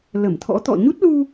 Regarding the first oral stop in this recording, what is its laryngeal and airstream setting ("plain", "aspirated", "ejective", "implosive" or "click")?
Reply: aspirated